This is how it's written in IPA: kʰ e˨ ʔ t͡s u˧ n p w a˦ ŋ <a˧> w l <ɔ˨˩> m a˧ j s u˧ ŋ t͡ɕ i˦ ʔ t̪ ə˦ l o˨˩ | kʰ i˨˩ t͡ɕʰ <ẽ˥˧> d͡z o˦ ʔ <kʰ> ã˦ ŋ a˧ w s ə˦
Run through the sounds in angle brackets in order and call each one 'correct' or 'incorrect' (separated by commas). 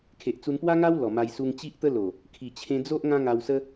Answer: incorrect, correct, incorrect, incorrect